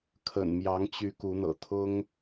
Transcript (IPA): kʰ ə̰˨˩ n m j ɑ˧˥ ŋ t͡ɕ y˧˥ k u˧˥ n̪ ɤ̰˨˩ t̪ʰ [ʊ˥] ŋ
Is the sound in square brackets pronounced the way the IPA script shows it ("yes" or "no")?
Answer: yes